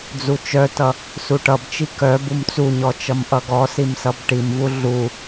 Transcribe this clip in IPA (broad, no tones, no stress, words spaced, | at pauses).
d͡zut͡ʃœtʌ | suʈʌbt͡ʃi kœ bumt͡suɲɔ t͡ʃʌmʔʌɡɔsim sʌbʈimvu ɮu